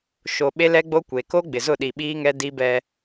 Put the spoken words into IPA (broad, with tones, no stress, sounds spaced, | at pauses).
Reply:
ʃ o˨ ɓ e˦ l ɛ˦ ɡ͡b o˦ kʷ e˨ k o˦ ɡ͡b ɪ˨ z ʊ˦˨ ɗ i˨ ɓ iː˦ ŋ ɛ˦ d i˦ b ɛ˦